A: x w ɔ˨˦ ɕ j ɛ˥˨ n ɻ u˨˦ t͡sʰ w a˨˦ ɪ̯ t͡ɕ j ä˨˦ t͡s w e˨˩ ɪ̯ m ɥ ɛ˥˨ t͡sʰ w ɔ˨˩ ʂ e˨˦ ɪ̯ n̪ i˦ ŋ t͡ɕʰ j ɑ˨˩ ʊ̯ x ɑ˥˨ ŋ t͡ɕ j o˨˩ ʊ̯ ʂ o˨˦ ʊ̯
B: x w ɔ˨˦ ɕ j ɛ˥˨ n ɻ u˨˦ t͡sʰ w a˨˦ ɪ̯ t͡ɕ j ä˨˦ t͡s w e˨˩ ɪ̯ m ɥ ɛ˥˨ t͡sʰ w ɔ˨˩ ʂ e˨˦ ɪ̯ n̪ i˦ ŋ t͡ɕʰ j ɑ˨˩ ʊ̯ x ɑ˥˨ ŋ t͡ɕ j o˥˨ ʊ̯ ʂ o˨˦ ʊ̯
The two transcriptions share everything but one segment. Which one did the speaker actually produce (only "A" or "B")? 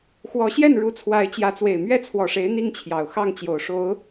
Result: A